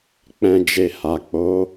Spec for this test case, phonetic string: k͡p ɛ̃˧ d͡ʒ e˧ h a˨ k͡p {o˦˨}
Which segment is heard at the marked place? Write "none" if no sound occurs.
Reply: o˨˦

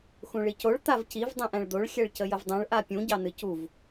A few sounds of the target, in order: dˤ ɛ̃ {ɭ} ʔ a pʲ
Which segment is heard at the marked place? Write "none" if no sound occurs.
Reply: ɭ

